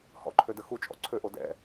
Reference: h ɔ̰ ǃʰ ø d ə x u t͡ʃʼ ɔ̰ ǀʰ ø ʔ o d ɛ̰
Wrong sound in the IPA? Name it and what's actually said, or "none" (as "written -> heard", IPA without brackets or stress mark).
none